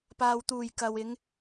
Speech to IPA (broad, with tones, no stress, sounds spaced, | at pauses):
p aː˨ w t̪ uː˨˩ j k ɐ˨ w ɪ˨˧ ŋ